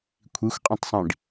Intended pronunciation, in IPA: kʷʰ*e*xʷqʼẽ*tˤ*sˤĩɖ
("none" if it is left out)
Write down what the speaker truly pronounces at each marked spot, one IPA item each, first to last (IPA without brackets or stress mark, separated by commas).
i, tˤ